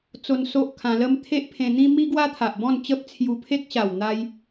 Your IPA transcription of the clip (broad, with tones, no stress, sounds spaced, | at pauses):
t͡s o˧ n s o˦ ʔ kʰ ã˧ l ə˦ m t̪ʰ e˦ ʔ pʰ ẽ˧ n̪ ĩ˦ m i˦ ɡ w a˦ t̪ʰ a˨ ʔ b ɔ̃˥˧ n t͡ɕ ə˦ p̚ t͡sʰ j u˧ pʰ e˦ k̚ ɕ a˨˩ w n̪ a˦ j